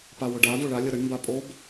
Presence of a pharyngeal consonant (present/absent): absent